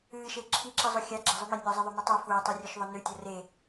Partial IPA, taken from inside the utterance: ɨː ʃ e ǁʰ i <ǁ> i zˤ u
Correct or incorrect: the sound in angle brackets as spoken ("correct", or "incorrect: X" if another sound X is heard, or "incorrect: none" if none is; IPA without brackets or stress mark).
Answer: correct